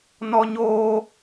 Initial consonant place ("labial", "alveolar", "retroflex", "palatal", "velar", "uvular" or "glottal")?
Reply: alveolar